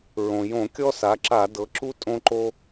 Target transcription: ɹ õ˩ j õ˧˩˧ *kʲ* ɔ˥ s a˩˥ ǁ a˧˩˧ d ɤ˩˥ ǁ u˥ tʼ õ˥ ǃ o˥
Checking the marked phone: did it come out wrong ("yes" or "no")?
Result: no